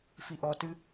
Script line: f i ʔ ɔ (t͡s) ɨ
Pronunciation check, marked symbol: incorrect: t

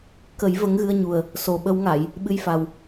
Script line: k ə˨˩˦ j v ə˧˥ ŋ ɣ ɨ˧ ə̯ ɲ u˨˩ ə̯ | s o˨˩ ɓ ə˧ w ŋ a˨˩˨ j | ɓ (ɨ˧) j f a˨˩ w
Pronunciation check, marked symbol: correct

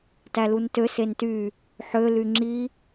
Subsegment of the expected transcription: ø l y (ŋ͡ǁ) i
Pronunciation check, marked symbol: correct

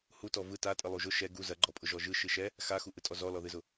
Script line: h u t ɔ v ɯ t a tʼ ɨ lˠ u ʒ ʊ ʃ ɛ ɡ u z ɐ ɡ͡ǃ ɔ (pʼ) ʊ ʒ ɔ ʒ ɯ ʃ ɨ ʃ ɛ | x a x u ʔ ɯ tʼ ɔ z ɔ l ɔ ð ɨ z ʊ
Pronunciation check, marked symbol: correct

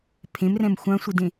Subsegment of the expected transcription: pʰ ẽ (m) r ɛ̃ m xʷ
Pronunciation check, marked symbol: correct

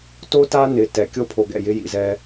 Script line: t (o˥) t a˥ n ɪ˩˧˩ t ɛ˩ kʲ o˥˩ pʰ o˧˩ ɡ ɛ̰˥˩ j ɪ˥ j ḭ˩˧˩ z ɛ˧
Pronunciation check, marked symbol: correct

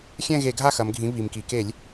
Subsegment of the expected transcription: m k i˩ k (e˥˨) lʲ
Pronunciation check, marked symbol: incorrect: e˧˩˧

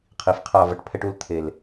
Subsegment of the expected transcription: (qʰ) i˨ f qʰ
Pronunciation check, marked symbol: correct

